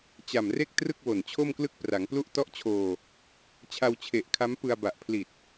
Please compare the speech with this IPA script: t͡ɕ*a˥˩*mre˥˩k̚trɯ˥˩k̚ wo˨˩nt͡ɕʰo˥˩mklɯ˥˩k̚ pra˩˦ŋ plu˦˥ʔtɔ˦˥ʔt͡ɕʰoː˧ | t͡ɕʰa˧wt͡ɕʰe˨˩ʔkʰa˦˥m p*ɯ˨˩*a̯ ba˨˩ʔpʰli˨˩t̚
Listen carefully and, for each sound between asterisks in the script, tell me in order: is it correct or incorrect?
incorrect: a˨˩, incorrect: ɯ˧

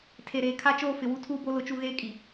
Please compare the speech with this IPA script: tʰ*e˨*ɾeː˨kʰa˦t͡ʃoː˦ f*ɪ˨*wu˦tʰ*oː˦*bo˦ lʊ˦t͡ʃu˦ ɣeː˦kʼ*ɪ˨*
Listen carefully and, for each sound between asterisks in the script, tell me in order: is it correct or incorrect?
correct, correct, incorrect: uː˦, incorrect: i˨

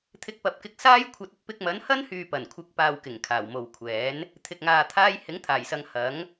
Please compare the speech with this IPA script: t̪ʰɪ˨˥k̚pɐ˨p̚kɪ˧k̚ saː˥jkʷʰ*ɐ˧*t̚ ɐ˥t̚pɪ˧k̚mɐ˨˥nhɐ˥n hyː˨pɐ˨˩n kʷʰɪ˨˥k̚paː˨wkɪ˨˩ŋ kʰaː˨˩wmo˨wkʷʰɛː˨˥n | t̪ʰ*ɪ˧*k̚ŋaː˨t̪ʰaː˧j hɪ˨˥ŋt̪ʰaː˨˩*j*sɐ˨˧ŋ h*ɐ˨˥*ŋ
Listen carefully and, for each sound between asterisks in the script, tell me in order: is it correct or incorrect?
correct, incorrect: ɪ˨, correct, correct

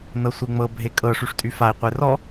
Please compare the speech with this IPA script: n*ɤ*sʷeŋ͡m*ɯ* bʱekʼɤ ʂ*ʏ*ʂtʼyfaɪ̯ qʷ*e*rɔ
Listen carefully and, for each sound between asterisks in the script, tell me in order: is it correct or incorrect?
correct, incorrect: ɤ, incorrect: y, correct

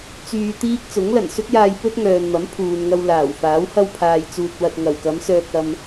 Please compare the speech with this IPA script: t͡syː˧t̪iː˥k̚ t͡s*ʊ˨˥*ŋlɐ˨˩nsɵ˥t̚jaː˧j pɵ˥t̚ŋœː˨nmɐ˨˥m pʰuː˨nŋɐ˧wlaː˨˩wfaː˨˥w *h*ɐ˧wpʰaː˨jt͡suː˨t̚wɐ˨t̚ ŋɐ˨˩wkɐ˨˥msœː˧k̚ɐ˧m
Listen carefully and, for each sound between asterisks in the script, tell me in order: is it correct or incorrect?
correct, correct

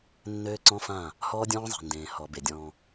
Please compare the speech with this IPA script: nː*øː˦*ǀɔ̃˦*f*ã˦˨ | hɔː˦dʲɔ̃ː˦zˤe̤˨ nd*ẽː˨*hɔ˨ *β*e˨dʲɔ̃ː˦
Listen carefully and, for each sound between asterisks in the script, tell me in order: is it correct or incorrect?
correct, correct, correct, incorrect: b

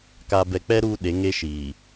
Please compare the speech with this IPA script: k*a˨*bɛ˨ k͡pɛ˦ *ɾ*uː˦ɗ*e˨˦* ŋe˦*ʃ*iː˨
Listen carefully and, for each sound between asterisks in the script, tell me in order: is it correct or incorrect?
correct, correct, correct, correct

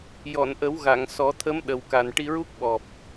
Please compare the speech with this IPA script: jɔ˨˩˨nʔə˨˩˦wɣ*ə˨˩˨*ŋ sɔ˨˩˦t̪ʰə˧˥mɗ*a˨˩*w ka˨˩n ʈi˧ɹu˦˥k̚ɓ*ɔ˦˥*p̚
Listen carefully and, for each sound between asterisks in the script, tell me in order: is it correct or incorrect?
incorrect: a˨˩˨, incorrect: ə˨˩, incorrect: ɔ˨˩

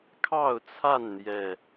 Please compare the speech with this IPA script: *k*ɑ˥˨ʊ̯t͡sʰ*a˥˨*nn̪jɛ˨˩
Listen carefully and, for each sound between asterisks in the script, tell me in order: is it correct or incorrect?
incorrect: kʰ, correct

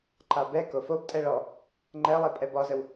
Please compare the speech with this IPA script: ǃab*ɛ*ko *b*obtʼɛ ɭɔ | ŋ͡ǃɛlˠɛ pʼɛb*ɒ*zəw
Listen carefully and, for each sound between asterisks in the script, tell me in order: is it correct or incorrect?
correct, incorrect: f, correct

